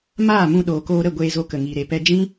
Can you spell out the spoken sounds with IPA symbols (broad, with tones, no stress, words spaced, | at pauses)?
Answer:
maː˦˨mũ˧ ɗoː˨koː˧ɾə˦˨ɡʷeː˧ zo˧kə˨ŋiː˨ ɾe˨pɛ˧d͡ʒĩ˦